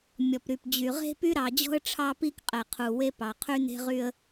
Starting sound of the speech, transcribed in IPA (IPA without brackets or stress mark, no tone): mʲ